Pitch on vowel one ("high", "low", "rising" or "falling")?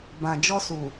low